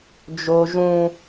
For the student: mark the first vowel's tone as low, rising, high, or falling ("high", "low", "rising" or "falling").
high